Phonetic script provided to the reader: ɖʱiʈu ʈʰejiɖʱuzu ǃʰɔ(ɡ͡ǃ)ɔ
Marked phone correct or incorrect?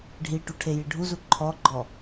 correct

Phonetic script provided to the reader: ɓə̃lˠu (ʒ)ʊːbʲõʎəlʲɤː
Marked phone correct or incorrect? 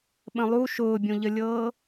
incorrect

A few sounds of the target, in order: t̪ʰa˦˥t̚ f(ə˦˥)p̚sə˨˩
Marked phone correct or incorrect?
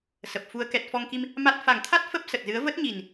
correct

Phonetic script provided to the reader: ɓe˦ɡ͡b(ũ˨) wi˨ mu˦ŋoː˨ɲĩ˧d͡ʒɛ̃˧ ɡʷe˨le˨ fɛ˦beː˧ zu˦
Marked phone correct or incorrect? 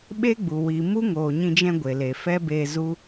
incorrect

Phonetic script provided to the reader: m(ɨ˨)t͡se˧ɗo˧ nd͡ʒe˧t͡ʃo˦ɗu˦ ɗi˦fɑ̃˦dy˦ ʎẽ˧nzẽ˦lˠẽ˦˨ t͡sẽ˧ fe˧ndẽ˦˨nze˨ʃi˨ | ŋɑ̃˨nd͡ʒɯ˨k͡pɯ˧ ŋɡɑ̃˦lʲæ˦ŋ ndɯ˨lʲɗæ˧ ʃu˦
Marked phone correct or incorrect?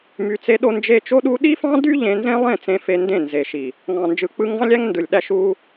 incorrect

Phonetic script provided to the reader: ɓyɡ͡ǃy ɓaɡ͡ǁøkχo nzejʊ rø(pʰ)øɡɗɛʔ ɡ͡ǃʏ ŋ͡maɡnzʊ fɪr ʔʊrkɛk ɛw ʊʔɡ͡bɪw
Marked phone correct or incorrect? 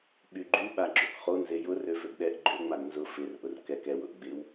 incorrect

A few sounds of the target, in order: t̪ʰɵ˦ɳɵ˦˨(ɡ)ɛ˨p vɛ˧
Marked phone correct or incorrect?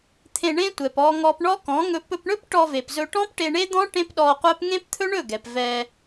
correct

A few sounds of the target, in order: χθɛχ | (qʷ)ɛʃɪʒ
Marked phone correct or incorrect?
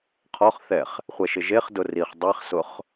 incorrect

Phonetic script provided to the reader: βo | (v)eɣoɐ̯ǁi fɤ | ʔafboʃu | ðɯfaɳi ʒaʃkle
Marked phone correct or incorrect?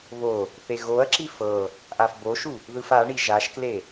incorrect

